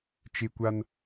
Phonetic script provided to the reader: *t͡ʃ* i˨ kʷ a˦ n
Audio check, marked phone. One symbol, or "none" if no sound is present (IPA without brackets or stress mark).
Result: t͡ʃ